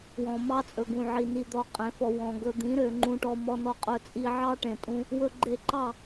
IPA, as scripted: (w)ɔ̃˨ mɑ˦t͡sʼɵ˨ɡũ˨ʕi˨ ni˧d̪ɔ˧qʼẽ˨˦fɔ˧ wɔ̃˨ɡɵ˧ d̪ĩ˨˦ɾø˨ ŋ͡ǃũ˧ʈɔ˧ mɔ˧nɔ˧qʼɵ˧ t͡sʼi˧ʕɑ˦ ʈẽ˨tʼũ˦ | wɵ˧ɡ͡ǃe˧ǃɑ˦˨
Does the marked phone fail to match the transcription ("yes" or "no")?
no